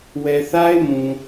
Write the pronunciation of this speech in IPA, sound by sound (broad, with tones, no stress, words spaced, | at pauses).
wɛ˨θa˦ɪ̯mũ˨